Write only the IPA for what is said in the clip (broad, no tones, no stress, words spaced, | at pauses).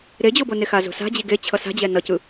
ɾed͡ʑobone xazo̤sa̤ d͡ʑiɡet͡ɕʰʌ sa̤d͡ʑɛ nʌcɯ